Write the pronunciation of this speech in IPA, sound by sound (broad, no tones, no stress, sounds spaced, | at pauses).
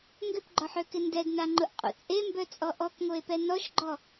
ŋ ɡ ʏ p ɡ͡ǃ ɔ ħ ø k ɪ n d ɛ d n a ŋ͡ǃ ʊ ʔ qʼ ṵ t͡sʼ e m b œ t͡sʼ ɔ ʔ ɔ k ŋ o e̯ p ɛ n ɔ ʃ ɡ͡ǃ ɔ